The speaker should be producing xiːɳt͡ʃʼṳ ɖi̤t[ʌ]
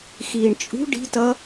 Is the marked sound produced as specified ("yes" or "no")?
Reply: yes